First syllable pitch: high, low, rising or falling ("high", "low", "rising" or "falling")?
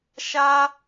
high